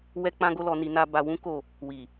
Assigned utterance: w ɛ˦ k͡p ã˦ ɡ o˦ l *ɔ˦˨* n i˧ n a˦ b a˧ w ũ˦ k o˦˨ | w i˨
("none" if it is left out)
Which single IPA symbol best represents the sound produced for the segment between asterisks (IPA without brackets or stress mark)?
ɔ˧